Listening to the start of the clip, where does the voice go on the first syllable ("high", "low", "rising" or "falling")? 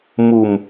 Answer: low